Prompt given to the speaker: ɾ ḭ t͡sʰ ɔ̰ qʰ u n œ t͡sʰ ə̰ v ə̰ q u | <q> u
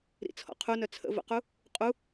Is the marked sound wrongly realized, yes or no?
yes